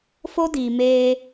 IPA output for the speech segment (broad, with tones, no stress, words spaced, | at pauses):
fo˦diː˨ meː˧